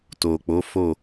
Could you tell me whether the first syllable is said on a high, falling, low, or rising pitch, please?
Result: low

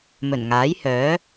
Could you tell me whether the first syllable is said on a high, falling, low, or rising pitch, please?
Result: low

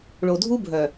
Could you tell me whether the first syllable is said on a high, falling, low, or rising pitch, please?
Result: low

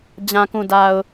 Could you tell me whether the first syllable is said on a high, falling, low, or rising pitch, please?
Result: low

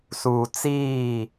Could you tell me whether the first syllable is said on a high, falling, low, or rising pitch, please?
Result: low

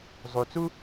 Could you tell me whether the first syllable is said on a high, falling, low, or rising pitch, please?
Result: low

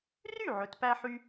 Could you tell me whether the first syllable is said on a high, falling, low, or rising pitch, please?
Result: falling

